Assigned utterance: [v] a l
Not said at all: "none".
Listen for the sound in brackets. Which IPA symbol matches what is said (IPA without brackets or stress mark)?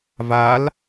v